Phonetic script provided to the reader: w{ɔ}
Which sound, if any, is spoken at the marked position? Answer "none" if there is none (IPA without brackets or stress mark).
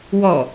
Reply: ɔ